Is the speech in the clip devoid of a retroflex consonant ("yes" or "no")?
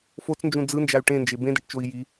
no